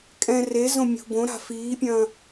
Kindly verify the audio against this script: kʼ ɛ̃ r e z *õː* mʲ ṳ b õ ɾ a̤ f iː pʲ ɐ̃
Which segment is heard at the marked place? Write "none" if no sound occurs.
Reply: õ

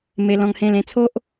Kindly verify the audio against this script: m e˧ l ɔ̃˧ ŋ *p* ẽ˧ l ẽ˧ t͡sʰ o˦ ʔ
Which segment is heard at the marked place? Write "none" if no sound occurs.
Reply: h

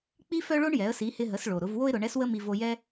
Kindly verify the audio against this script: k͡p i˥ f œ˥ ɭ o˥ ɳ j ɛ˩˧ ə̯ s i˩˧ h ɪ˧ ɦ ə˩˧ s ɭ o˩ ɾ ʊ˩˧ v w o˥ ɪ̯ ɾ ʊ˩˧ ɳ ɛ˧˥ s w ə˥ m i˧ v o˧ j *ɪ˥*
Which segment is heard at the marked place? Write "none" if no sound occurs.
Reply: ɛ˥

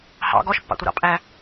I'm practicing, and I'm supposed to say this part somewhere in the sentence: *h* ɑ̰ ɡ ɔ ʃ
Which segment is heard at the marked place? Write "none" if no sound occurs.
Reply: h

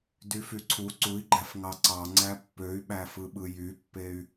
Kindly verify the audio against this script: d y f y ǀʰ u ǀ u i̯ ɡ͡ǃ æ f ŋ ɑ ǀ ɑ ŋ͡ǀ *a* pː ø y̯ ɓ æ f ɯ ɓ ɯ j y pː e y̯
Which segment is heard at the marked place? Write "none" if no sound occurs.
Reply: æ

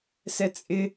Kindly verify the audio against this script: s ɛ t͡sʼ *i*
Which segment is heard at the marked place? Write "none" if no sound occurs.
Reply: ɪ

